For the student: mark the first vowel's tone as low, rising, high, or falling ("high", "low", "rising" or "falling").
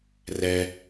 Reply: low